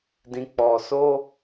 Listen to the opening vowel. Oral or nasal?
nasal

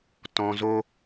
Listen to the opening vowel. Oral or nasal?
nasal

